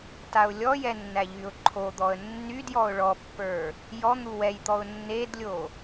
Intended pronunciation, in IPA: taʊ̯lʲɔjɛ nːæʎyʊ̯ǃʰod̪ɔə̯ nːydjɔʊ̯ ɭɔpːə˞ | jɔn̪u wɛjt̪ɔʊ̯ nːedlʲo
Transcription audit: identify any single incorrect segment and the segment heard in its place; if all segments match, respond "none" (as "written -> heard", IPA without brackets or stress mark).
none